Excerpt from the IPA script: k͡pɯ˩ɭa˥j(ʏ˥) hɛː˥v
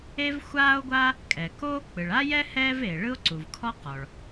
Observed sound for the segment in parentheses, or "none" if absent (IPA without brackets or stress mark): ɛ˥